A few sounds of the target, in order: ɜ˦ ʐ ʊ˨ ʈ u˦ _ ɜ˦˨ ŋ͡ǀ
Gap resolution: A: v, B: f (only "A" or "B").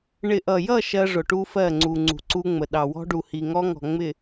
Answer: B